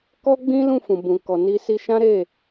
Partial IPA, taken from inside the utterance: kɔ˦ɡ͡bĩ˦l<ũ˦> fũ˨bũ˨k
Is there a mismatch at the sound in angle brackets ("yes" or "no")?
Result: yes